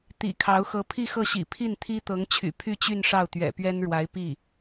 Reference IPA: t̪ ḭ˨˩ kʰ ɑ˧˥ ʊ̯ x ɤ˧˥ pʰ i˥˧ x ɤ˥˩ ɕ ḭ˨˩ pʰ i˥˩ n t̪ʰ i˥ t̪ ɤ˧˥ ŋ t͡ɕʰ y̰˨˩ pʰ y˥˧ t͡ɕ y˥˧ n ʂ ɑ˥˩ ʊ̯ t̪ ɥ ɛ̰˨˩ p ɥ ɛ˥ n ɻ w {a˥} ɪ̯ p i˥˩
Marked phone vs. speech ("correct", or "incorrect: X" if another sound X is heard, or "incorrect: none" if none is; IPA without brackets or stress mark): incorrect: a˧˥